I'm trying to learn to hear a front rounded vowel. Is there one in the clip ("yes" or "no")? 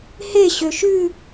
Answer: yes